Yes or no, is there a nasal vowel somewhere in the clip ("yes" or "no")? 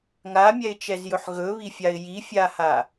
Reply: no